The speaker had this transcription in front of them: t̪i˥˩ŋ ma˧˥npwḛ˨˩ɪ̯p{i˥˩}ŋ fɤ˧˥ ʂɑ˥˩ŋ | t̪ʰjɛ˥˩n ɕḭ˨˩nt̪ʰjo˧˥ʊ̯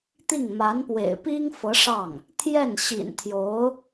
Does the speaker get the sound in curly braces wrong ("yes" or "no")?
yes